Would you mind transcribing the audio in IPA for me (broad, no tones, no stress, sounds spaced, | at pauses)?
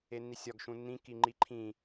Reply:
e nː i sʲ ɒ ɡ ʃ ũ nː ĩ k i ŋ͡ǃ i ǃʰ ĩ